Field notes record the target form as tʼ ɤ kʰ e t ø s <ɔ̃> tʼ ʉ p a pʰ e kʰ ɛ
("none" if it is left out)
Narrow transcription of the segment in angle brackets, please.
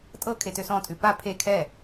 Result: ɔ̃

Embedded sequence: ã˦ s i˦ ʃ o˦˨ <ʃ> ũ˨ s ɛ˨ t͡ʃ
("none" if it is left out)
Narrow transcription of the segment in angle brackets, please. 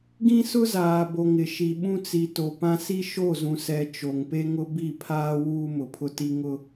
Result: z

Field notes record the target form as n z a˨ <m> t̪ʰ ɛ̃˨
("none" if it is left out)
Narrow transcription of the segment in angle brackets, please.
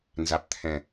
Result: p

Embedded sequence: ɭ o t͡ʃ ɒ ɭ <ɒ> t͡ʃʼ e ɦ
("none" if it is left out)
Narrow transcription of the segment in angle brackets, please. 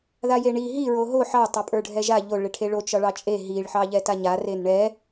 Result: ɑ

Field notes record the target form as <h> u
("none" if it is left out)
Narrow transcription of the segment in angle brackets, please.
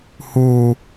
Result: h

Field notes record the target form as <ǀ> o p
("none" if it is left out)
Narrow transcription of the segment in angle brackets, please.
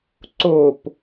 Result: ǀ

